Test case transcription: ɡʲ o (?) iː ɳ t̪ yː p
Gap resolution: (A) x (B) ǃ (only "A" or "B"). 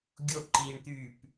B